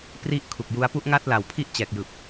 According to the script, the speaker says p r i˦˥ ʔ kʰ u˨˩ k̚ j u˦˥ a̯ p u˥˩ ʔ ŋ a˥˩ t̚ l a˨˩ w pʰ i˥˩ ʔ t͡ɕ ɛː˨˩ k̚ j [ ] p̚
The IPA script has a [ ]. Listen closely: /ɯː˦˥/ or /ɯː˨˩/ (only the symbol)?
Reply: ɯː˨˩